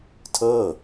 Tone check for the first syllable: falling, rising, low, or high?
falling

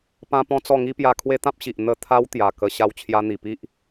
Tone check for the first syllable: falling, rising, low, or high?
high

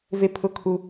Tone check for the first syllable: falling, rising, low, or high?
high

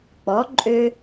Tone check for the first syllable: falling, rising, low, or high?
rising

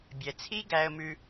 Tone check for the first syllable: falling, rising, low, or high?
low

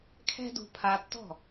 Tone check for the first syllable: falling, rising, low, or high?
high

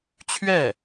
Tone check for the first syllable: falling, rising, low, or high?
falling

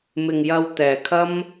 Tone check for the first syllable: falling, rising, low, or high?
low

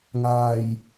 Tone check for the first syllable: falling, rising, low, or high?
low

